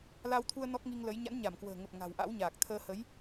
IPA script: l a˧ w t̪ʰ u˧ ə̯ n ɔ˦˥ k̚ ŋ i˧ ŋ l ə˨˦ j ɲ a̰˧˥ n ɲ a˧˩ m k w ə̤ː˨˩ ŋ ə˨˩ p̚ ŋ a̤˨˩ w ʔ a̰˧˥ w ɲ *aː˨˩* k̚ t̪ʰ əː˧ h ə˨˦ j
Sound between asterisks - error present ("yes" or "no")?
no